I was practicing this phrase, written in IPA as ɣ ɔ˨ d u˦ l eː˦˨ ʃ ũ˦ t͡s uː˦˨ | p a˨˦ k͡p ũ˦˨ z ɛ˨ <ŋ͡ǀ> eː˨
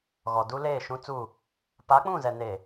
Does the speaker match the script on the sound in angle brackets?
no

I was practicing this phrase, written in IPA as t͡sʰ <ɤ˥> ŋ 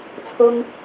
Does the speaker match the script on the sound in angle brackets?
yes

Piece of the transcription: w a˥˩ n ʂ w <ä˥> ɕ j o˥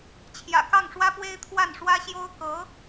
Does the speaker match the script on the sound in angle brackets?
yes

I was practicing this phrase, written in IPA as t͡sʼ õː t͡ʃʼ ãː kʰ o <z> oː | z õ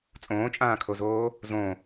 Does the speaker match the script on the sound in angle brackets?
yes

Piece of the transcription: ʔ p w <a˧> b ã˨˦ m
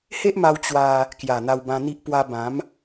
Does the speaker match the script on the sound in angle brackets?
yes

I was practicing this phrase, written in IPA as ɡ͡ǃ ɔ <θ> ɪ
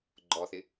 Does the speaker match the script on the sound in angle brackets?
yes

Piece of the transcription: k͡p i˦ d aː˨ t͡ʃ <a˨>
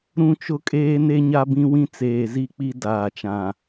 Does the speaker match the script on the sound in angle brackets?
no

